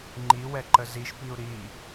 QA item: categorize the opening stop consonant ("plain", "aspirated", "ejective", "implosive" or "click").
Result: click